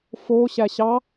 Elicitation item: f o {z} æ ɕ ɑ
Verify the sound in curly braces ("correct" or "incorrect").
incorrect